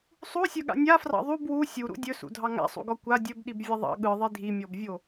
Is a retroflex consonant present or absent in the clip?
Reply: absent